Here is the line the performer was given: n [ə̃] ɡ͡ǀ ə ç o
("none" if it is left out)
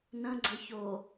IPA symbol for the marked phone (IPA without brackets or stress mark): ə̃